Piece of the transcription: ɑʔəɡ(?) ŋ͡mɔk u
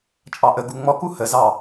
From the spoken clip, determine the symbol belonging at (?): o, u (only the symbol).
u